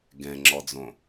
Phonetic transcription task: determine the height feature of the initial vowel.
mid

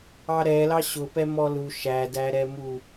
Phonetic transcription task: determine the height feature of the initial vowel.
low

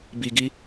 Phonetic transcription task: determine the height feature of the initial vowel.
high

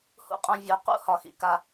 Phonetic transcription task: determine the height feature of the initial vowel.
high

